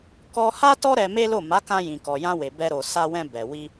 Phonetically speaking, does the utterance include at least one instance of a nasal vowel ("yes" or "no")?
yes